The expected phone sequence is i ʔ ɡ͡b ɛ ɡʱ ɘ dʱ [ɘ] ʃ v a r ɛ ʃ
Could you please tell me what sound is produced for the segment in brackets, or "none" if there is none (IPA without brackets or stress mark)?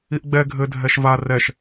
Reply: ɛ